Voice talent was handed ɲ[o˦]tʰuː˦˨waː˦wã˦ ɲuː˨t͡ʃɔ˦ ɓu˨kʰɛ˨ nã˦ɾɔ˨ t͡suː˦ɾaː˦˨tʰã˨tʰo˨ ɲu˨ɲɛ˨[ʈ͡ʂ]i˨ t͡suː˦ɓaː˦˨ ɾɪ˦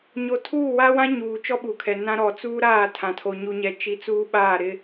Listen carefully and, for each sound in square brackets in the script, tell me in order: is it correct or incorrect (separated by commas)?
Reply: incorrect, incorrect